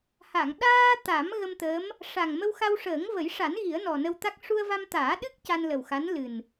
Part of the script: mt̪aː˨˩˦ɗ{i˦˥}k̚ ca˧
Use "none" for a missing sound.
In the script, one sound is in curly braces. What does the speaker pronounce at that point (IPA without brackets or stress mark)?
ɨ˦˥